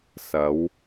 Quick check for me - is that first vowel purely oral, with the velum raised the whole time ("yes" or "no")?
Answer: yes